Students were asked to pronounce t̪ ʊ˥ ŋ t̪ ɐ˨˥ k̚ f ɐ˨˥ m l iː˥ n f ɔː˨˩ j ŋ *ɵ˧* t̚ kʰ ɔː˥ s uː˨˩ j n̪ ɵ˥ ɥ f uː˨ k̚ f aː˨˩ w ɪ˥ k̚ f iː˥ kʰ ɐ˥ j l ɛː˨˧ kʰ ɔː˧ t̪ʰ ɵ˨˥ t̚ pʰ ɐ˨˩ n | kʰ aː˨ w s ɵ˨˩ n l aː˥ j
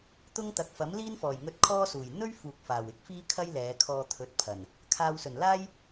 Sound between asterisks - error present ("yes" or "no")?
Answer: no